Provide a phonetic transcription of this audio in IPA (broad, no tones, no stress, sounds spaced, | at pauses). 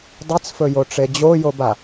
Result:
dˤ ɨ t͡s f ɵ j o ʈ͡ʂ e d͡ʑ o j o b a